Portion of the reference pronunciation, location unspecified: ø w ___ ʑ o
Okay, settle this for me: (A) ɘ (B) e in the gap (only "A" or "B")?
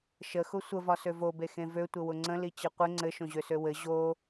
A